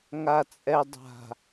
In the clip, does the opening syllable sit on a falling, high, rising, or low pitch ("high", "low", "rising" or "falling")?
low